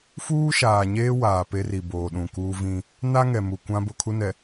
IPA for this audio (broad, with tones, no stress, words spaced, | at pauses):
fuː˦ʃaː˨ɲeː˦ waː˨ pe˦ri˨ boː˨ɗũ˨kuː˦vĩ˦ | na˦ŋɛ˨ mu˨kʷã˦ bʊ˦˨kʰu˦nɛ˨